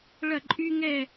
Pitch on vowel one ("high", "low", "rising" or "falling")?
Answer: falling